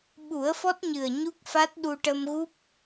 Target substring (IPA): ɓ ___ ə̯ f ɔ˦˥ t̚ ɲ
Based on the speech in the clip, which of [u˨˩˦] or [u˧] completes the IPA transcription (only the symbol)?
u˨˩˦